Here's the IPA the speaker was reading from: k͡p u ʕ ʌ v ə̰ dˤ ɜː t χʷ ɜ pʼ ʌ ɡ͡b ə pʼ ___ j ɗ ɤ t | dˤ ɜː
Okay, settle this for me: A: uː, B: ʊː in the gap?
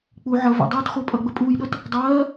A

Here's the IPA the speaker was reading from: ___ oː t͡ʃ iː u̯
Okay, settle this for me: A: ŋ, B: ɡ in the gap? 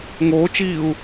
A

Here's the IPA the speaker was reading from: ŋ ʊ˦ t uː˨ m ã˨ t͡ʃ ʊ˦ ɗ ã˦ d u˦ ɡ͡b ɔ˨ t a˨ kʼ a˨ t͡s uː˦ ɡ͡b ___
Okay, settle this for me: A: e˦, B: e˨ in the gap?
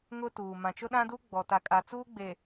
B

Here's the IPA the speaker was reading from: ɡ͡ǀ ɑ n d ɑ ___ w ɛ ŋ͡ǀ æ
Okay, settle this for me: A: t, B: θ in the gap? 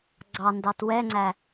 A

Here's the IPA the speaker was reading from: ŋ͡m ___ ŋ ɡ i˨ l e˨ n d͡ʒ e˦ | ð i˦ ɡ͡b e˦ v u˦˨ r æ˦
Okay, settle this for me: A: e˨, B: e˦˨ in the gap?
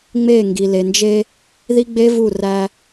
B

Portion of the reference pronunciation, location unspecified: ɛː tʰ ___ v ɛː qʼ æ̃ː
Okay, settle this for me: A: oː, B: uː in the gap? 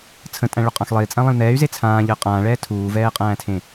B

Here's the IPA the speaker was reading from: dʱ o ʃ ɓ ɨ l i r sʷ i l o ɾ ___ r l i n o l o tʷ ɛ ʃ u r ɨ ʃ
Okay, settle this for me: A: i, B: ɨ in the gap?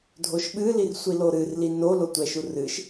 B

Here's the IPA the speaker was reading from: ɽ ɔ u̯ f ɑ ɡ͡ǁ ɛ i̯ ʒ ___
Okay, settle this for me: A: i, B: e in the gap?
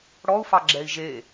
B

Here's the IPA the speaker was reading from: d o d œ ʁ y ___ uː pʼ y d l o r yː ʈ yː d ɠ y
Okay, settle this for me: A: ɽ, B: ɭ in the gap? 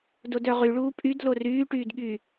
B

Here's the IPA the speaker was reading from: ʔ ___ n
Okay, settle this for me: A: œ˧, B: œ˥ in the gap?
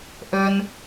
B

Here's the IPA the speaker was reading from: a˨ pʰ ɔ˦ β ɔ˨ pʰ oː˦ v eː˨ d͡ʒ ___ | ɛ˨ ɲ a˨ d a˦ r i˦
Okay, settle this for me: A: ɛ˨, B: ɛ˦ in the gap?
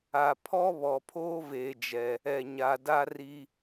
A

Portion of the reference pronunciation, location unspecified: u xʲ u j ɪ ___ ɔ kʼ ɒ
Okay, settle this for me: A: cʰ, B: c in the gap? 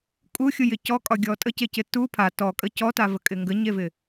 B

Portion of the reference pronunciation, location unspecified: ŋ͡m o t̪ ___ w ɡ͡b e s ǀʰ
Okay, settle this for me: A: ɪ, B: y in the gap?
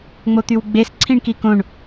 B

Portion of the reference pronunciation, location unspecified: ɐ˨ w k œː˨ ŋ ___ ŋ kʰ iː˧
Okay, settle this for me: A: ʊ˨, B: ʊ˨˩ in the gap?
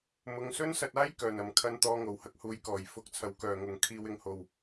A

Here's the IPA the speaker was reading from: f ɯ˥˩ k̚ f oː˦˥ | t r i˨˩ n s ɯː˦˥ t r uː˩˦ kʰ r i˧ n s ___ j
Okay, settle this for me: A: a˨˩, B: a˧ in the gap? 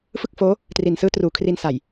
A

